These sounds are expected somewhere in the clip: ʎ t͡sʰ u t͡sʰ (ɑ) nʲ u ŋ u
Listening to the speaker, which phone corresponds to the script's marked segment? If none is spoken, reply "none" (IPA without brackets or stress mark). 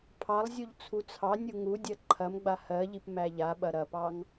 ɑ